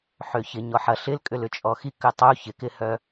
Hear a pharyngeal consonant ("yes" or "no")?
yes